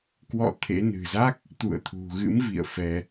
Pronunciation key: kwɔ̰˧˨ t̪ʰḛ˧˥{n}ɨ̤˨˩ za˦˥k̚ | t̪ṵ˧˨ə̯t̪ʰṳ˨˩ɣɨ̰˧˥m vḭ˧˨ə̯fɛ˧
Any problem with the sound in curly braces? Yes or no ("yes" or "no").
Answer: no